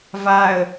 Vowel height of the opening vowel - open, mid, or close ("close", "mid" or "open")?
open